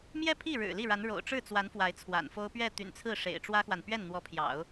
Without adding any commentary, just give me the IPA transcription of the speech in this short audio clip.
m j ɛ˥˧ pʰ i˥˩ ɻ ɻ̩˨˩ l i˥˩ ɻ a˧˥ n ɻ o̰˨˩ ʊ̯ ʈ͡ʂ ɻ̩˥˩ t͡s w a˧˥ n f w a˧˥ ɪ̯ t͡sʰ w a̰˨˩ n f o˥ ʊ̯ p ɥ ɛ˥˩ t̪ y̰˨˩ n t͡sʰ ɹ̩˥˩ ʂ ḛ˨˩ ɪ̯ ʈ͡ʂ w ä˥ x w a˨ n p ɥ ɛ˥˩ n n̪ w ɔ˧˥ pʰ j ɑ̰˨˩˦ ʊ̯

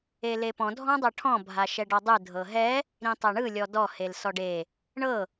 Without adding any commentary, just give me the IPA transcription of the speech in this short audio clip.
e l e p ɔ̃ dʱ ɔ̃ dˤ ɤ ʈʰ ɔ̃ bʱ a ʃ ɛ ɖ ɔ dˤ ɯ dʱ ɤ ɦ ɛ | ɾ ĩ tˤ ɛ ɳ ɯ lʲ ɔ d ɔ h e l s ɔ ɖ e | ɳ ɤ

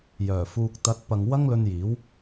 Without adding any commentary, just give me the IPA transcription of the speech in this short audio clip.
j œː˨˩ f uː˨ k̚ t̪ ɐ˨˥ t̚ p ɐ˨ ŋ w ɐ˥ ŋ l ɵ˧ n j iː˨˥ w

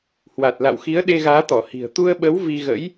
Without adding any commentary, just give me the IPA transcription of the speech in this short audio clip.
h w a˨˩ t̚ l a̰˧˨ w x i˨˦ ə̯ ɗ e˧ ɣ aː˨˦ t̪ ɔ˧˩ h i̤˨˩ ə̯ t̪ u˧ ə̯ ɓ ə˨˦ w v i˧ ɣ ə̰˧˥ j

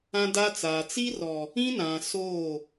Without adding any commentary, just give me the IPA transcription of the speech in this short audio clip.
ã˦ d a˦ t͡s aː˨ t͡s i˦ r ɔ˨ | ĩ˦ n ã˨ s oː˦˨

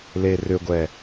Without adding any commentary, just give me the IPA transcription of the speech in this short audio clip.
l e r ʏ ɡʷ ɛ

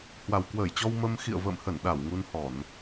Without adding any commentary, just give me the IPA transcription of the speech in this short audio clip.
h w a˨˩ w k w əː˧˩ j t͡ɕ ɔ˧ w m ə˧ m x ḭ˧˨ ə̯ v ə̰ː˧˨ m h ə˧˩ n ɗ a˧˩ w ŋ u˧ n h ɔ˧˩˨ n

